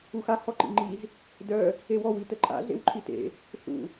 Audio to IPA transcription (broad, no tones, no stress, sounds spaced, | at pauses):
u x a h ɔ ǃ ḭ ŋ͡ǃ i z | d œ | e w ɔ w i t ə ǃʼ a̰ ɮ ḛ w ǃʰ i t ḛ | ɬ ṵ